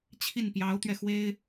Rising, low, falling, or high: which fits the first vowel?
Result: falling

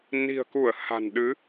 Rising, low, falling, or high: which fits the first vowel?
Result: low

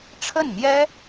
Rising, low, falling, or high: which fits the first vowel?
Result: falling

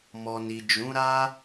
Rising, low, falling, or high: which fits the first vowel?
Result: low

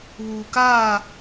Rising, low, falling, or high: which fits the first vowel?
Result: low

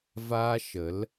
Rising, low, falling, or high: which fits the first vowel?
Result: high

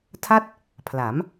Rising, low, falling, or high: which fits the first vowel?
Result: falling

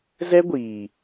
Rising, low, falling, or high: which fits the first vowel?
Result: high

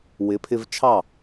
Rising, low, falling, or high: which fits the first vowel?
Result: rising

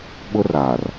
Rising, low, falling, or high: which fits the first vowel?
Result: high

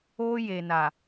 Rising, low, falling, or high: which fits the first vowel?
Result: high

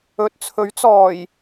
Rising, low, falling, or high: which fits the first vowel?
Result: rising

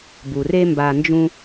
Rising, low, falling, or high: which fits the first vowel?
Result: low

